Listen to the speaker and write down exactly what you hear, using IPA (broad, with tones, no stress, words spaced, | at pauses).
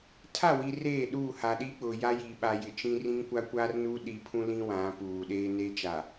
tʰa˦˨wi˨ reː˦˨ɗuː˦˨ ha˨ɗiː˦k͡pʊ˨ja˦ ji˨ ɓa˨jɪ˨ t͡ʃĩ˦ rĩ˦ŋkʷa˦kʷaː˦rnuː˦ ɗiː˨pʰũ˦ lĩ˦wã˨˦ puː˨ɗeː˦ neː˦t͡ʃa˨